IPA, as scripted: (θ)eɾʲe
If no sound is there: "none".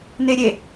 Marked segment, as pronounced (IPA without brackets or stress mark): n